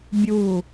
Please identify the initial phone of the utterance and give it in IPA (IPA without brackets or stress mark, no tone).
bʲ